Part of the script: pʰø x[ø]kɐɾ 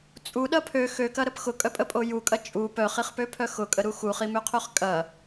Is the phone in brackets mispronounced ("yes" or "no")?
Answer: no